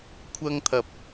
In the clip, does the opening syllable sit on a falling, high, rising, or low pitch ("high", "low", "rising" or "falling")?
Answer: high